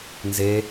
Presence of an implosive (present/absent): absent